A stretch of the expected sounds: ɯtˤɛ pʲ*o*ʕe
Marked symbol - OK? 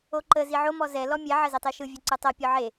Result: no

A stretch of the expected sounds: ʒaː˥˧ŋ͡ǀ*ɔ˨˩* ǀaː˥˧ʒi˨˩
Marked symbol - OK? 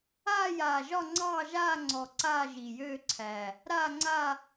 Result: yes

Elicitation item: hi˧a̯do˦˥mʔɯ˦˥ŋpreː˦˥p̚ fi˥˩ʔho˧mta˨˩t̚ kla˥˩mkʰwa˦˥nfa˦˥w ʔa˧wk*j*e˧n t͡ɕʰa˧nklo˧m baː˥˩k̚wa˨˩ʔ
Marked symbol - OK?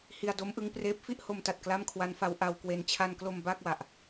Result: no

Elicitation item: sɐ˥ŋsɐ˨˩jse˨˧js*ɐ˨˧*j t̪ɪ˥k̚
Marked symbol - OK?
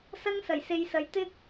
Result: yes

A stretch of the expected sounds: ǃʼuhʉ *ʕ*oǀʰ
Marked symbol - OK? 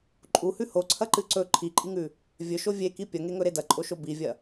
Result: no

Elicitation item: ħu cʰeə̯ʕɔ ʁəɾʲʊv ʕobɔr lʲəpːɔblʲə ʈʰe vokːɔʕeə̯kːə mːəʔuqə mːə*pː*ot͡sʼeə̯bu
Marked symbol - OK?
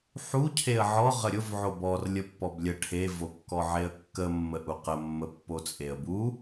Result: yes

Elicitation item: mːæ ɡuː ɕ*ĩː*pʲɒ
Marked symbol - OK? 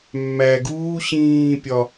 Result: yes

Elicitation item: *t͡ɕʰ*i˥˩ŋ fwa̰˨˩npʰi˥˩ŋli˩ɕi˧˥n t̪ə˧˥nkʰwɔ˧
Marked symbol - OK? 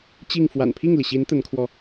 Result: no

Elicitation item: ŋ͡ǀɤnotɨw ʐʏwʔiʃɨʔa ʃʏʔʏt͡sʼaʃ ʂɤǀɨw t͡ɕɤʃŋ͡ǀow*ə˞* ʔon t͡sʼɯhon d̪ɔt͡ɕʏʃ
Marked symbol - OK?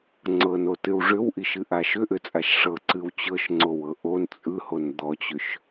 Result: no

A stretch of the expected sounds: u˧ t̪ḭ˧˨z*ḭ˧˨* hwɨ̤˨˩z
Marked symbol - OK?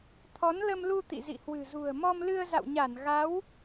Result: yes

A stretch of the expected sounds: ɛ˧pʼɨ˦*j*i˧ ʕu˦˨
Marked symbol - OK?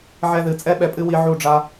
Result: no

